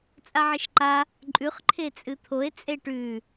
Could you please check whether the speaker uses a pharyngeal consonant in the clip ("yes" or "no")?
yes